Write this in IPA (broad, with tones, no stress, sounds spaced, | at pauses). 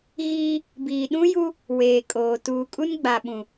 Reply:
ɣ iː˦ | b iː˨ ɗ ũ˦ j u˦ | w eː˨ kʼ oː˨ t uː˨ kʼ u˦ n ɡ͡b a˨ ɓ ũ˨